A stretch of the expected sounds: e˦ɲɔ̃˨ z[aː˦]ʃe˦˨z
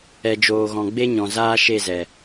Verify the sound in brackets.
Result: correct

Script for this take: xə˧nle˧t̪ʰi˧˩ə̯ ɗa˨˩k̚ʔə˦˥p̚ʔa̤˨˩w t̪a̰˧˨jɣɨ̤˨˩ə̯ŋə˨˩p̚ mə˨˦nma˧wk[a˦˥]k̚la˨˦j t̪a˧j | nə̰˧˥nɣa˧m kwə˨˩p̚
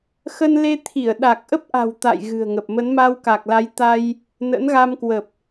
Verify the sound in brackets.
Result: incorrect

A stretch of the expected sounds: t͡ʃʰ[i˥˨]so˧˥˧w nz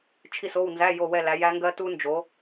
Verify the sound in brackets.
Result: correct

